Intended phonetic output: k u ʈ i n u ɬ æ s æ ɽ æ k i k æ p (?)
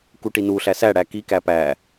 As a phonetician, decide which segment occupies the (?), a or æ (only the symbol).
æ